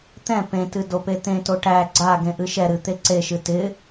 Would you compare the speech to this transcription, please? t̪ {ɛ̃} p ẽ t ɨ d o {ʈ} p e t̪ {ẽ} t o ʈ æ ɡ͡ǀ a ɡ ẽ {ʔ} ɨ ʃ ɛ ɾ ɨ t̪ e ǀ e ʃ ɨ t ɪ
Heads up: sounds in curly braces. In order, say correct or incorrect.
correct, incorrect, correct, correct

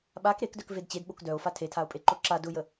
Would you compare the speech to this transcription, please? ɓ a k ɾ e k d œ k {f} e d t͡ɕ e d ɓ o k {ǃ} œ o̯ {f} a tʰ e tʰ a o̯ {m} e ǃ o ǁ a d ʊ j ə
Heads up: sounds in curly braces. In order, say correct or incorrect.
incorrect, incorrect, correct, incorrect

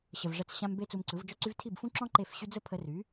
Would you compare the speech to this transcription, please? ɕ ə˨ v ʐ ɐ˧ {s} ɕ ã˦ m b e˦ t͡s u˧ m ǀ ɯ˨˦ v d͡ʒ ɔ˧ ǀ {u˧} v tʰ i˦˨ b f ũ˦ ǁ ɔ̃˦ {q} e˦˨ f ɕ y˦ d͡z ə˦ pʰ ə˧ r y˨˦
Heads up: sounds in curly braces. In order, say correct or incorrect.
incorrect, incorrect, incorrect

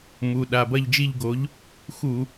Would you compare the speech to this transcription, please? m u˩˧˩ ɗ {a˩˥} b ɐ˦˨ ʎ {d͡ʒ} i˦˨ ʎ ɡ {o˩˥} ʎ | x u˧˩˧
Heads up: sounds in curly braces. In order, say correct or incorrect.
incorrect, correct, correct

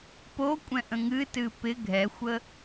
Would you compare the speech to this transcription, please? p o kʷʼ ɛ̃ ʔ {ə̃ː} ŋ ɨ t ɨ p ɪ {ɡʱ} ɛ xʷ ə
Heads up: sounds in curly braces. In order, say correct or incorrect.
incorrect, correct

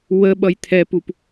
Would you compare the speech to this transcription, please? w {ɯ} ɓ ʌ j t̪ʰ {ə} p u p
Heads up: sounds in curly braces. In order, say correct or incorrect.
incorrect, incorrect

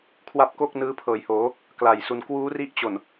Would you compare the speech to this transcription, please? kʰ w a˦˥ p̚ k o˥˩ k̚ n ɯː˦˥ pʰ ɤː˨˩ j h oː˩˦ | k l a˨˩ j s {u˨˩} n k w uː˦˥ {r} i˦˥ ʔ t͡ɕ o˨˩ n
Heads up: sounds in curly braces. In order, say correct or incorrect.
incorrect, correct

